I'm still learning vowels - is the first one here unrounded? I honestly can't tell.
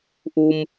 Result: no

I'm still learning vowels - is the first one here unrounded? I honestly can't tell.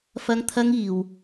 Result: yes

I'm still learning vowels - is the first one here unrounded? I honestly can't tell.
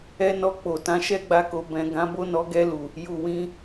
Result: yes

